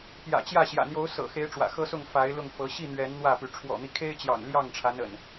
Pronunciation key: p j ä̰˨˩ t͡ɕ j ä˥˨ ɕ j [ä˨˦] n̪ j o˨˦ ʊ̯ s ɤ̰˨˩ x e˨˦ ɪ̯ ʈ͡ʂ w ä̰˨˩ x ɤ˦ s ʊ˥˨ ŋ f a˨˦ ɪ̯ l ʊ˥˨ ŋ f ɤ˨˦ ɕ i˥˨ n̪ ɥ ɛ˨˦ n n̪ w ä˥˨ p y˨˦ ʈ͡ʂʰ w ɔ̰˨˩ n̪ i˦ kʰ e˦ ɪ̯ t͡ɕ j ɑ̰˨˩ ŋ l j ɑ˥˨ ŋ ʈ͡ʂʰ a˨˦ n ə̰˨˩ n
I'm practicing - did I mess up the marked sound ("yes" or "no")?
yes